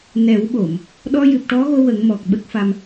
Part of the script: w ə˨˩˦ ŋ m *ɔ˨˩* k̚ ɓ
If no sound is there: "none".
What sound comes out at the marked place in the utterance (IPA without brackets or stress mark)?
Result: ɔ˨˩